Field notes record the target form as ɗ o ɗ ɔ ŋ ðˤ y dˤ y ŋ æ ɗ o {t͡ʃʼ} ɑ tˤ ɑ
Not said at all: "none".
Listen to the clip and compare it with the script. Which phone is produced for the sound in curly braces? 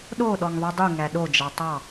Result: d͡ʒ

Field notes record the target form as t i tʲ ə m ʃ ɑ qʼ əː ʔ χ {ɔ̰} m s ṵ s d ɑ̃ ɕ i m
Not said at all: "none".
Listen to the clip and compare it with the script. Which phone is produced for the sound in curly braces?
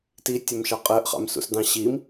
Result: ɑ̰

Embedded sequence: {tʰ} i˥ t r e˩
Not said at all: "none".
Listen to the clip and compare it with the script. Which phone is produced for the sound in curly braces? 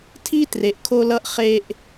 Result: tʰ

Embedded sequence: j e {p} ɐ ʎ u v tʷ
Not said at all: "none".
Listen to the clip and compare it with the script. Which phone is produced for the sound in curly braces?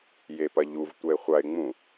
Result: p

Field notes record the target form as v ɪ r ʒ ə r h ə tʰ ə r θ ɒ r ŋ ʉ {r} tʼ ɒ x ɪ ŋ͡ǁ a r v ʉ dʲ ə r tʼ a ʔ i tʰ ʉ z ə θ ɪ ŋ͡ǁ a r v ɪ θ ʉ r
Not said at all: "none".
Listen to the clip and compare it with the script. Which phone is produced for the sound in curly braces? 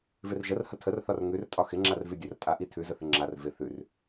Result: r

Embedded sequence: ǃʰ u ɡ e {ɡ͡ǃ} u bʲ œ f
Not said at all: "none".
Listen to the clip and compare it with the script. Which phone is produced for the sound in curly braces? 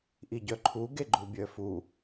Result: ɡ͡ǃ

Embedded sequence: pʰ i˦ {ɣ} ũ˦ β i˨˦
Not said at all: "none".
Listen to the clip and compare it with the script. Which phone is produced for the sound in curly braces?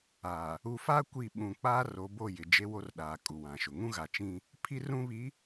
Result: r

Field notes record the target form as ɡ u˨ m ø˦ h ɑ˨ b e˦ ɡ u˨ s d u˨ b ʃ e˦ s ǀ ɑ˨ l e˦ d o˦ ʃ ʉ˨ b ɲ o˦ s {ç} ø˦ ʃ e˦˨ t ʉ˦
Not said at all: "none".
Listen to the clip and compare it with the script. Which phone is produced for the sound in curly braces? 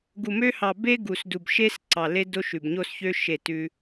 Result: ç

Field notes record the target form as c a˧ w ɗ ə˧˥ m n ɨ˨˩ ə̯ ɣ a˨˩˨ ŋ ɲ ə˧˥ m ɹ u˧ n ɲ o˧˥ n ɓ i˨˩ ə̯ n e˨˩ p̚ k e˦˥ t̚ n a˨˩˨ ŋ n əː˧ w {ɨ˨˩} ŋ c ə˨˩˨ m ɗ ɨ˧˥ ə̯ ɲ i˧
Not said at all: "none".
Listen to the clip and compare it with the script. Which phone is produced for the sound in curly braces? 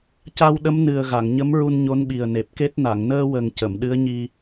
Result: ə˨˩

